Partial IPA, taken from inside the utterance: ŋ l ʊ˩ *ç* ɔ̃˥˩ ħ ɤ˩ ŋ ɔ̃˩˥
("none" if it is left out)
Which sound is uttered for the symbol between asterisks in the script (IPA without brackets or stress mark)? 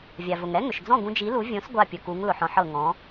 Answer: ħ